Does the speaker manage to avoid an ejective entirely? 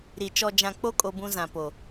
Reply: no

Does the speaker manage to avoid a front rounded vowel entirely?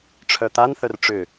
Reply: no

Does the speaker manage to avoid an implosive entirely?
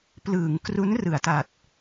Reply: yes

